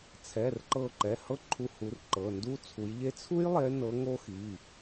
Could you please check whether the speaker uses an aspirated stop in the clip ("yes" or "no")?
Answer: yes